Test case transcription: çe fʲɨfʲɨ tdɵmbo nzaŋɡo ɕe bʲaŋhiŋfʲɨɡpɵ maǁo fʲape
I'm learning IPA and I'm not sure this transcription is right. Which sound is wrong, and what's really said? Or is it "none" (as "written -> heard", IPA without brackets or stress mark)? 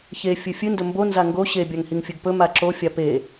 t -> n